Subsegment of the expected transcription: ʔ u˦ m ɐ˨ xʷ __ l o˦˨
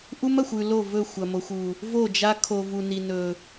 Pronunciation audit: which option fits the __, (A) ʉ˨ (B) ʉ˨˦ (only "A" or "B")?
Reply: A